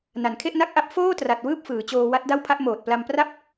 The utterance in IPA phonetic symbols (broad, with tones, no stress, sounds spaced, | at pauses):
n a˨˩ n kʰ e˥˩ ʔ n a˥˩ k̚ ʔ a˦˥ p̚ f oː˥˩ t r a˨˩ t̚ w ɯː˥˩ p̚ f ɯː˩˦ t͡ɕ oː˧ w a˦˥ t̚ d a˥˩ w pʰ a˦˥ ʔ m oː˨˩ t̚ p l a˧ m p r a˥˩ p̚